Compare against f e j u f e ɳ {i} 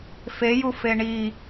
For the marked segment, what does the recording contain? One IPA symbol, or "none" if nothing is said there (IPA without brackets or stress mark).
i